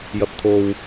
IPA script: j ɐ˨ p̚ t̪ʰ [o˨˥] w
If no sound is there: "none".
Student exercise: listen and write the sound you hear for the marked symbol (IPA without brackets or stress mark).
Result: o˨